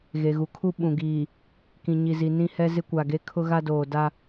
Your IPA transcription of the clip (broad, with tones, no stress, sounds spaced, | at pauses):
ɣ e˨ ɣ u˨ kʰ u˦ ɓ ũ˨ ɡ iː˨ | k ĩ˨ ɲ i˨ z i˨ n ĩ˦ h ɛ˦ z ɪ˦ kʷ a˨ ɡ e˦ kʰ ʊ˦ ɣ a˦ d oː˨ d a˦